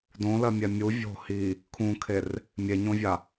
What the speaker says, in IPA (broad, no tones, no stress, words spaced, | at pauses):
dõlɜmʲɛ mʲu vʲo̤ hi | kʰũkʰer | mʲeɲõvʲa